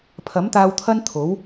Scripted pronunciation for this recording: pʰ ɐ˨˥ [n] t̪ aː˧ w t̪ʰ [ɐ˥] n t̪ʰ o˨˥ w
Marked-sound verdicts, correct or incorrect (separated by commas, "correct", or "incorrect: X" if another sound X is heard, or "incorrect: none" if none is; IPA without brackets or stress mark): incorrect: m, correct